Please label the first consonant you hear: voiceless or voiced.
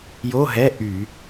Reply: voiced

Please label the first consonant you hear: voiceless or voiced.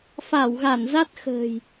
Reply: voiceless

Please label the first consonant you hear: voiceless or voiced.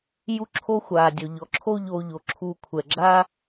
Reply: voiced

